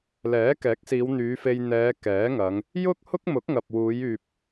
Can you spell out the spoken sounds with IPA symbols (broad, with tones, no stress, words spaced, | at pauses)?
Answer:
lɛː˨˥kɛː˨˥k̚siː˨˧w n̪yː˨˧ fe˧j n̪ɛː˨˧ kɛː˨˥ŋɐ˨˧ŋ | jʊ˥k̚hʊ˥k̚mʊ˨˥k̚ ŋɐ˨p̚wuː˨˧jyː˨p̚